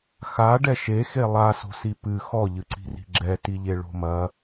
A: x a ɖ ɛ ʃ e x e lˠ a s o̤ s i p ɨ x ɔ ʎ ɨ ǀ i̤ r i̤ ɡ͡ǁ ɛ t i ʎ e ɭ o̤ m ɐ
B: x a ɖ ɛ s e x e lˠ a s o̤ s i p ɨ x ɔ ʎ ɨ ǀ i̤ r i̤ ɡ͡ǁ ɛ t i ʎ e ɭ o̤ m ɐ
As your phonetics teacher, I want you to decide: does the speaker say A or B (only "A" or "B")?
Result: A